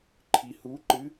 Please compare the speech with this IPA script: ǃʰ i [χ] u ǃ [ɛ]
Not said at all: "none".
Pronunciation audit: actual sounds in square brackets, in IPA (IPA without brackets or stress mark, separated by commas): h, ɨ